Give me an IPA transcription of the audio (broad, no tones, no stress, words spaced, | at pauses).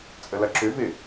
t͡sʼəlɐǁʏvɪː